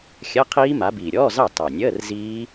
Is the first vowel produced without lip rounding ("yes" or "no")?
yes